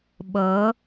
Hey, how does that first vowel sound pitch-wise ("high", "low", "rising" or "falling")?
rising